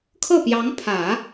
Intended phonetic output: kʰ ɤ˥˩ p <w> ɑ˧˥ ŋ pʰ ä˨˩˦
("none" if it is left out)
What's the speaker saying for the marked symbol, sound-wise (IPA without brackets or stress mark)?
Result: j